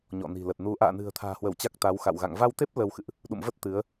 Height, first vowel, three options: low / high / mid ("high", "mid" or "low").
mid